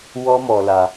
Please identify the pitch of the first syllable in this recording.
high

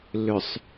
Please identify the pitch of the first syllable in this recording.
low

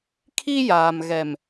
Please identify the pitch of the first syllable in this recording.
high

